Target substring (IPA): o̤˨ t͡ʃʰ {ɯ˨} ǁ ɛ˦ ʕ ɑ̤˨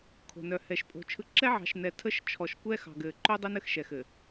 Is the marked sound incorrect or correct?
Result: correct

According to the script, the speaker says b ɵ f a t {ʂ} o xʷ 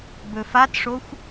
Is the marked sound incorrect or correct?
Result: correct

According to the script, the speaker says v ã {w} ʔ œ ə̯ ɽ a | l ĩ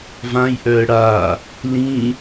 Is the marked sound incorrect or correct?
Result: incorrect: j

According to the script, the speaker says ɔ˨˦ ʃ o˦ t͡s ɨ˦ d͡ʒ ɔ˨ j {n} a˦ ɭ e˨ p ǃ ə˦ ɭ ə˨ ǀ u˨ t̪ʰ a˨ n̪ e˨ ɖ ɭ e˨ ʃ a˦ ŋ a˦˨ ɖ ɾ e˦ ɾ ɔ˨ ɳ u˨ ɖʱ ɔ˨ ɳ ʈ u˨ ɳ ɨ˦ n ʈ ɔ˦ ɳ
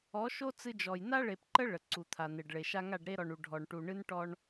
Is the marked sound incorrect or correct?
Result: correct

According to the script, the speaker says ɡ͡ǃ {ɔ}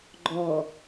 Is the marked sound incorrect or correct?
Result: correct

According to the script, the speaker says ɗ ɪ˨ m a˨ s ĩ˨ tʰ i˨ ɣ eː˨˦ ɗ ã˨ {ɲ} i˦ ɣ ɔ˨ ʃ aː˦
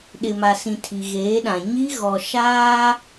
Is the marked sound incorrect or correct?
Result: correct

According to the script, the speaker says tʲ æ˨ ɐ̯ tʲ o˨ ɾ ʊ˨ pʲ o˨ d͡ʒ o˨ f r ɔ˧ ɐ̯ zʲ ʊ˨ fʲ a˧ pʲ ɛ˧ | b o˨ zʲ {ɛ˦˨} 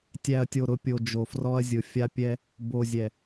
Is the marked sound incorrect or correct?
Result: incorrect: ɛ˨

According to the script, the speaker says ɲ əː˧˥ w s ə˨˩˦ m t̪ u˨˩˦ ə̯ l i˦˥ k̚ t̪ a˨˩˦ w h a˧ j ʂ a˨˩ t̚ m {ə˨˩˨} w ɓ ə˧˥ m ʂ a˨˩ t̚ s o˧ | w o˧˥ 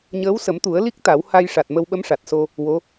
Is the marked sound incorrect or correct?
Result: incorrect: ə˧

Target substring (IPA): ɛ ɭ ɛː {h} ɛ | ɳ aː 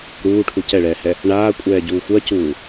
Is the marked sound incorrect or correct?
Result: correct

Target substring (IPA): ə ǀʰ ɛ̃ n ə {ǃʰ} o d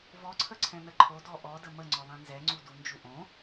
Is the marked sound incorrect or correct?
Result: correct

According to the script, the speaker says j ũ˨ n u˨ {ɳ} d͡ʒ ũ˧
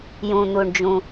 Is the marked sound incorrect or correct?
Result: correct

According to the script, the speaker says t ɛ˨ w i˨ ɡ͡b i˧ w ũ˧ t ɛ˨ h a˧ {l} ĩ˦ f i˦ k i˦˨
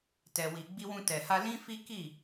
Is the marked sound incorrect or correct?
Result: correct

